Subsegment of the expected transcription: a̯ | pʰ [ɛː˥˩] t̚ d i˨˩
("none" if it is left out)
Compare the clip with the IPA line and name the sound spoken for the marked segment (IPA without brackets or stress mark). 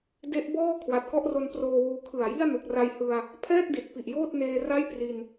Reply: ɛː˥˩